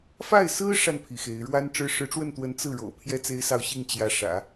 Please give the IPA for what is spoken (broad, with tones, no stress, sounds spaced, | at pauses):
f a˥˩ ɪ̯ s ɹ̩˥ ʂ a˨ n pʰ i˩ x e˧˥ ɪ̯ ɻ w a˥ n ʈ͡ʂ ɻ̩˥ ʂ ɻ̩˧˥ ʈ͡ʂ w ə˥˩ n t̪ w ə˧˥ n t͡s ɹ̩˥˩ ɻ o̰˨˩ ʊ̯ pʰ j ɛ˥ t͡s e˥ ɪ̯ s ɑ˥˧ ʊ̯ ɕ i˥˩ ŋ t͡ɕ j ä˧˥ ʂ ä̰˨˩˦